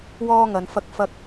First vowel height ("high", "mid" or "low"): mid